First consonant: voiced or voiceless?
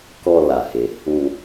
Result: voiceless